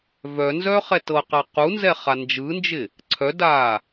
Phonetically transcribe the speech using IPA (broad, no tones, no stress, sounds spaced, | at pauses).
v œ n z œ χ ɛ t ɤ q a q u n z ɛ χ a n d͡ʒ ɯ n d͡ʒ ɪ | ǀʰ œ d aː